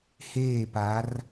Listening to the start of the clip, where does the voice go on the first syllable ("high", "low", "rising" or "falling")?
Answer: falling